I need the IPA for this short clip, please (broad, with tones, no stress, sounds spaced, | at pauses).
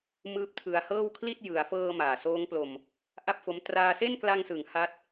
m ɯː˦˥ p̚ tʰ ɯ˧ a̯ h ɤː˥˩ w kʰ l i˥˩ t̚ j ɯ˩˦ a̯ f ɤː˧ m aː˨˩ s oː˦˥ ŋ p l o˧ m | ʔ a˥˩ p̚ f o˦˥ m t r aː˧ s e˥˩ n k l a˧ ŋ s ɯ˩˦ ŋ h a˦˥ t̚